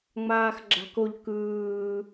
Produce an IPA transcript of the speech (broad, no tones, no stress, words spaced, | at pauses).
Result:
ŋ͡maːxɡ͡ǁa̤koʎ kɯː